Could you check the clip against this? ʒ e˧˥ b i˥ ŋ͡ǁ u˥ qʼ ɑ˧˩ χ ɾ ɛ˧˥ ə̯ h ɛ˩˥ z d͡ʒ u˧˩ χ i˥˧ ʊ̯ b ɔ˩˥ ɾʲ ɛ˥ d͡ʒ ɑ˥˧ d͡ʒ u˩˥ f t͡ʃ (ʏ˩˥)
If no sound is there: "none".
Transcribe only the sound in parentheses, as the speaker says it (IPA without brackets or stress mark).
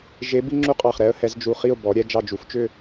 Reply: ʏ˥˧